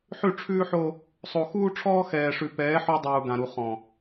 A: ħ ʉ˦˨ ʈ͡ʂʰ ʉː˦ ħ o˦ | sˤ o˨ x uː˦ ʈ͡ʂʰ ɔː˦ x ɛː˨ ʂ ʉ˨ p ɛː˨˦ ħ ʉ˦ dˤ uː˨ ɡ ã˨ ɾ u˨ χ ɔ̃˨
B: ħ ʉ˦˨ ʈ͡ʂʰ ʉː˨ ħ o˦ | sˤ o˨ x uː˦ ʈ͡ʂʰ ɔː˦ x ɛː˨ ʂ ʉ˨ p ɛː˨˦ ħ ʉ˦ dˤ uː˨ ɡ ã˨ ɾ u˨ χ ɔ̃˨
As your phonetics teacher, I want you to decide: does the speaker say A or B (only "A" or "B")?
A